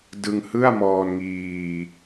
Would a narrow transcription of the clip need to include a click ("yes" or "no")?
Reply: no